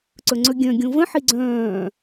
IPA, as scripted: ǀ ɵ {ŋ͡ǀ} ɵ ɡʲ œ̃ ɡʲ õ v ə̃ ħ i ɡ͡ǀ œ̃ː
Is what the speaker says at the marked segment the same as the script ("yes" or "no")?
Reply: yes